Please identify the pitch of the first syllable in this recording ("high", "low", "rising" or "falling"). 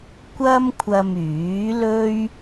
high